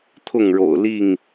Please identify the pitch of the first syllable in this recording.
falling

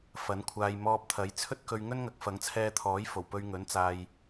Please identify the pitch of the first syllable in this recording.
rising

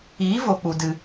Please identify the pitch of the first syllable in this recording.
rising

